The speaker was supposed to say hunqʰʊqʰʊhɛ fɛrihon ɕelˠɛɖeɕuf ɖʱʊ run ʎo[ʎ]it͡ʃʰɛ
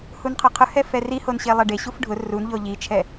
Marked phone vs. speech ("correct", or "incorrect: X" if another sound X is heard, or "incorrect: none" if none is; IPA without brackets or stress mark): correct